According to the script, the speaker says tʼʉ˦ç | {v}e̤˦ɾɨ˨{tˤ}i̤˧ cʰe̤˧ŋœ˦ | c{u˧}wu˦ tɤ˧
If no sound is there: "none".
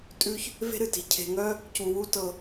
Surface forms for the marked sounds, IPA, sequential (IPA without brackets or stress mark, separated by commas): v, t, u˧